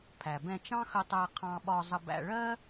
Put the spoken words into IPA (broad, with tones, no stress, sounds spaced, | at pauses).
pʰ æ˩ b ɛ̃˧ t͡ʃ ɑ̃˥ x ə˧ tˤ æ˧ qʰ ɑ̃˧ ɓ ɒ˧ zˤ ə˧ b æ̰˧ ɭ ɜ˥